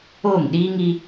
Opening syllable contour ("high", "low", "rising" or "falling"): falling